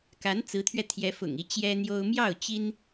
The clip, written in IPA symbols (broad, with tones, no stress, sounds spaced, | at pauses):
k a˧˥ n t͡s ɹ̩˧˥ t̪ʰ ɥ ɛ˧ t̪ʰ j ɛ˧˥ f ʊ̰˨˩ ŋ i˧˥ t͡ɕ j ɛ˥ n̪ j o˥ ʊ̯ m j ɑ˥˩ ʊ̯ t͡ɕ i˥ n